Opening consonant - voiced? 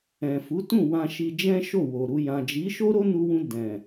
no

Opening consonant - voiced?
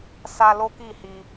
no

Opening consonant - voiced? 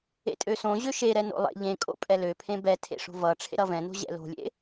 no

